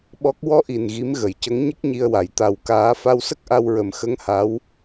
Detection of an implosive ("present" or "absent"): present